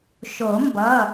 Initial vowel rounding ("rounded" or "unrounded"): rounded